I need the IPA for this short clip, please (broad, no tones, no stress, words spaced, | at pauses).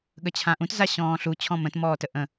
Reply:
ɠət͡ɕʰãʔũt zaɕɔ̃ːɬu t͡ɕʰɔ̃mə̃t mɔːtəʔə̃